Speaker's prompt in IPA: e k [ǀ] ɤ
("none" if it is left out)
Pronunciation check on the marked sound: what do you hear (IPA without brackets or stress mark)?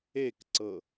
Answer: ǀ